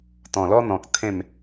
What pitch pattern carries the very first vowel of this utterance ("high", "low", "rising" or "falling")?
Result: low